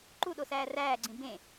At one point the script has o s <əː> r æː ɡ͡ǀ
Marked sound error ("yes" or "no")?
yes